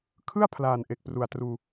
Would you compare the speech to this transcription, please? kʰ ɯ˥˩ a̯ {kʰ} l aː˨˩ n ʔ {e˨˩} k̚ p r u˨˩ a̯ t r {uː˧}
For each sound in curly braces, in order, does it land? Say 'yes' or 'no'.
no, yes, yes

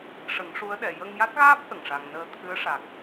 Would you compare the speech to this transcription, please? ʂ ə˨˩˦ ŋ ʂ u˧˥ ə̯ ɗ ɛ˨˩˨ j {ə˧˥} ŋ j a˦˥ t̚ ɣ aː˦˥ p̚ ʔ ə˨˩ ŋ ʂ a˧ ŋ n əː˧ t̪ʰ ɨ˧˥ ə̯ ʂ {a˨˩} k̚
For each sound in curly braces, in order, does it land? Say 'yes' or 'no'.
no, yes

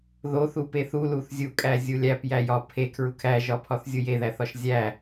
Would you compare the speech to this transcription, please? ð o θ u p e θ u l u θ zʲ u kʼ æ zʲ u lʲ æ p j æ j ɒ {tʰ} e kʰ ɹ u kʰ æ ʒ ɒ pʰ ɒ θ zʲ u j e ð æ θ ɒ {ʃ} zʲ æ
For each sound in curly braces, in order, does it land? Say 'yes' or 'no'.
no, yes

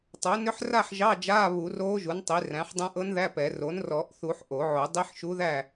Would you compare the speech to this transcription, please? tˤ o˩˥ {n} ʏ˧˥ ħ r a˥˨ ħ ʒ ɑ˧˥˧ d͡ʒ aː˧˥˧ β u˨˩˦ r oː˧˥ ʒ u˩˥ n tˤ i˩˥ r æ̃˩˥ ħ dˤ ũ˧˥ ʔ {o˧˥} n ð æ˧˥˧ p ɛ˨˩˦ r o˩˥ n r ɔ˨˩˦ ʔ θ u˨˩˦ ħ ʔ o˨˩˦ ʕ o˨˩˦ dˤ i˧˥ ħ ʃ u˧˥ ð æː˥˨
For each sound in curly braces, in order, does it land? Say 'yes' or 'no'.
yes, no

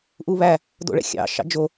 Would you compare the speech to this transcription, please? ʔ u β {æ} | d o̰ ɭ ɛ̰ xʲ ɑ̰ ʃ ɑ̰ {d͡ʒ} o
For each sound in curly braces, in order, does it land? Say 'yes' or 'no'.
yes, yes

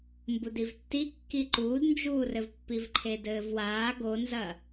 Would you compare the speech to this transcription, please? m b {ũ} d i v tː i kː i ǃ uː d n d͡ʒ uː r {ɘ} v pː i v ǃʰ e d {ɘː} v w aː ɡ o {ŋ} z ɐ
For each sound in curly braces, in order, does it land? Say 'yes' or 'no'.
no, yes, yes, no

